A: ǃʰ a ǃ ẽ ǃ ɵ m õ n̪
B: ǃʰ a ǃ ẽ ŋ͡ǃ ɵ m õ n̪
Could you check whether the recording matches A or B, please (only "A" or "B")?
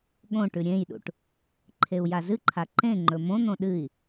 B